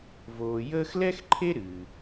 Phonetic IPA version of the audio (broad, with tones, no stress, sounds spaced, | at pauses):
v oː˨ j əː˦ x l ɛ˥ x ǃʰ e˥ ɾ ɨ˩